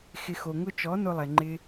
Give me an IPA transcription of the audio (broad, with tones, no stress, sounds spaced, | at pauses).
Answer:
x ɪ˨ x o˨ ŋ ʊ˧ t͡ʃ ɔ˨˦ n ʊ˧ lˠ ɛ˨ ŋ͡ǃ ɪ˦